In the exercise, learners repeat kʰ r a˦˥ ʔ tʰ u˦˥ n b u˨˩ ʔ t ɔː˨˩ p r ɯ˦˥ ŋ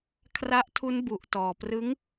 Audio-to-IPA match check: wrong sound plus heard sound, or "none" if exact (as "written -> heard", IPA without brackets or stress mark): none